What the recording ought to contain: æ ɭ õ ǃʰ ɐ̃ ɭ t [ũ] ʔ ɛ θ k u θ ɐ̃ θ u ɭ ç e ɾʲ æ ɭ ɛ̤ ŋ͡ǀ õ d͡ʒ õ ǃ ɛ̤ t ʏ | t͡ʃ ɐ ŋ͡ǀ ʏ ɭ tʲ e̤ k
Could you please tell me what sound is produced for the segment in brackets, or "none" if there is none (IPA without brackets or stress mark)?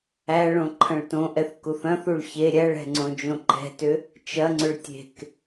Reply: õ